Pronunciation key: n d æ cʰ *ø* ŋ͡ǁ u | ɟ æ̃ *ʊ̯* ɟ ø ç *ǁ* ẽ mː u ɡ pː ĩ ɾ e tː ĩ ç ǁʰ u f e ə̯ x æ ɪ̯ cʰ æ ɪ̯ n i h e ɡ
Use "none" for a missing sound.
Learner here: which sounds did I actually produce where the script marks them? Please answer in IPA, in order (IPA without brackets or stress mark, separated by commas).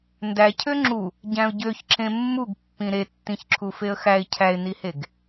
ø, ʊ̯, ǁ